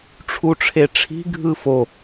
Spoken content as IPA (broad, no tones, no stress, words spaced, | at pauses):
ʈ͡ʂʰuʈ͡ʂʰeʈ͡ʂʰi̤ ɡʱɯfo